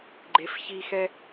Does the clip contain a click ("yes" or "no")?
yes